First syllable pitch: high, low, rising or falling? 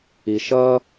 low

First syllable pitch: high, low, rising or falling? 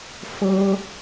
high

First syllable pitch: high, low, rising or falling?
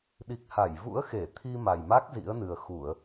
low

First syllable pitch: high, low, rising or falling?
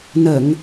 low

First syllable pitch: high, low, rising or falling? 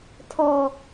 low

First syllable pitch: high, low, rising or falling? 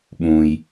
low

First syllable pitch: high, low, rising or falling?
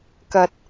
low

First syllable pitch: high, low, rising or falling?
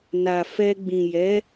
low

